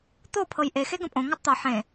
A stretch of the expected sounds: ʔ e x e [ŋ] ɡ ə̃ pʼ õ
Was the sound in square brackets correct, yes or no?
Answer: no